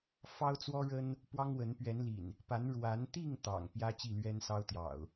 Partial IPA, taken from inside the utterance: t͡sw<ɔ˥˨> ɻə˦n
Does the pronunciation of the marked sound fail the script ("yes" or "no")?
yes